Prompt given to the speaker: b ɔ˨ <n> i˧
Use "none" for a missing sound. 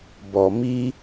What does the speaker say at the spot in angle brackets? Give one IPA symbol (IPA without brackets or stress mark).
m